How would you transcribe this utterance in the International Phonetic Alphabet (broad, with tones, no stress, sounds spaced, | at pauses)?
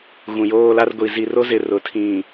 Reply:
ɣ ũ˨ j oː˦ l a˦ r ɡʷ i˨ z i˨ r o˦ z ɪ˨ r ʊ˨ tʰ ĩ˨